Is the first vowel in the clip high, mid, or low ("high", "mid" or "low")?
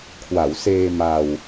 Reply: low